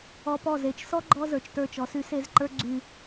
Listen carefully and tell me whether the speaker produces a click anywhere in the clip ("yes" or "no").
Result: yes